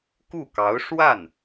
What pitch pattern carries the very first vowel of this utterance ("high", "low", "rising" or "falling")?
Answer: falling